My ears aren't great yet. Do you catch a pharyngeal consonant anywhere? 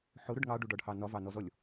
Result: yes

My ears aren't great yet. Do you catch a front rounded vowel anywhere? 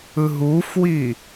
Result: no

